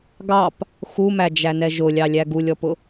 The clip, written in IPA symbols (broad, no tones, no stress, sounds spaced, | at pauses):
ɡ ɑ p | x u m æ d͡ʒ æ n ɛ ʒ ʊ lʲ ɑ lʲ æ ɡ u lʲ ɔ p ʊ